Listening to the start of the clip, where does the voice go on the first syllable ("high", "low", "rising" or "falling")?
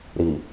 low